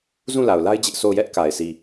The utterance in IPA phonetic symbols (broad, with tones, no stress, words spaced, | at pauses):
zũ˦˨la˨ʊ̯la˦ɪ̯ d͡ʑɪ˦ʔso˦˨ʊ̯ jɛ˦ʔka˨ɪ̯ si˨